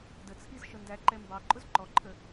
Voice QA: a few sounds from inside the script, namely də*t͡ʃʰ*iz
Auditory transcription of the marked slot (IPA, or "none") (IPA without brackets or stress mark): t͡sʰ